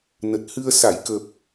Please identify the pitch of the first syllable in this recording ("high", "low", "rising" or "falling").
low